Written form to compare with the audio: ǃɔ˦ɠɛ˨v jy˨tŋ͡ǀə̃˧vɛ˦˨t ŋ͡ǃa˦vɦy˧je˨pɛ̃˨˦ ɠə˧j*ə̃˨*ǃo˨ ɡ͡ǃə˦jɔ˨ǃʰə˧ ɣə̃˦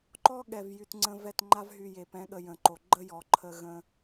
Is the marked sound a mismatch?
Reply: no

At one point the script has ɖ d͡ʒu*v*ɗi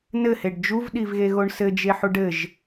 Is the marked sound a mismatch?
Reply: no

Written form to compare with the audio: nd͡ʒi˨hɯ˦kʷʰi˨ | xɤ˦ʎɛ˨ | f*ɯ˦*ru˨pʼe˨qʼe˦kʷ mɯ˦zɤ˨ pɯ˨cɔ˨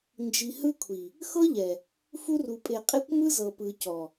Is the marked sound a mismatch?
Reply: yes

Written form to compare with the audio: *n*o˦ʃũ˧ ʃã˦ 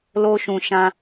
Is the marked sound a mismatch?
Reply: yes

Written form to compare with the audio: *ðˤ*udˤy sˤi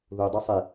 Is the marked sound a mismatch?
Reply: yes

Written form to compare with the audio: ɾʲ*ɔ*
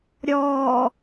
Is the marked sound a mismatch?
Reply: no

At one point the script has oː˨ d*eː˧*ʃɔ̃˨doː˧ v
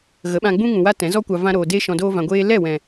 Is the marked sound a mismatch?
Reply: no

